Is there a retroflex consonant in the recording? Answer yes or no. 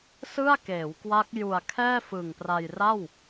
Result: no